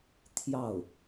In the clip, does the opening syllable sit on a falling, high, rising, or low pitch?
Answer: falling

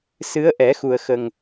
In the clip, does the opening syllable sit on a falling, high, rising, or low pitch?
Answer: rising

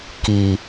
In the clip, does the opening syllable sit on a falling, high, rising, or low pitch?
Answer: low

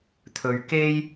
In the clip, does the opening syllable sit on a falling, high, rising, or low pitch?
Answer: low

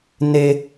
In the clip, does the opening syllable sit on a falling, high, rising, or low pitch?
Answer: high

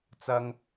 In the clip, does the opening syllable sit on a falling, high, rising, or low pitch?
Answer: high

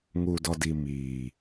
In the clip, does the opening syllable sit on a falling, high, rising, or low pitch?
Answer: low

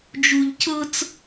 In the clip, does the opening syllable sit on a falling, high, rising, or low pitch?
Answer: low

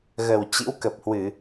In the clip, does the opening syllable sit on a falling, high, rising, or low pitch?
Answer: low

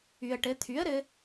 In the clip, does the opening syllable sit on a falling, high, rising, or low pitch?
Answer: low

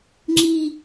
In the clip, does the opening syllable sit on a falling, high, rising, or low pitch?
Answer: high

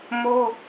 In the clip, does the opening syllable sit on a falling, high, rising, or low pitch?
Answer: high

